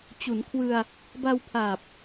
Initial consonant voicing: voiceless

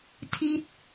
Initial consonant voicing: voiceless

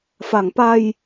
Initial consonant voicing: voiceless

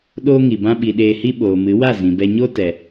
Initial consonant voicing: voiced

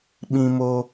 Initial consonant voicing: voiced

